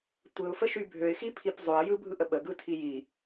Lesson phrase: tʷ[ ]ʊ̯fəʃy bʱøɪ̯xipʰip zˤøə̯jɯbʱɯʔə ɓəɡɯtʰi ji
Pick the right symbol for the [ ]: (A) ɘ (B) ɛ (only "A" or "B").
A